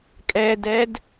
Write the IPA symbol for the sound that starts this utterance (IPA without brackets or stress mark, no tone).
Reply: kʼ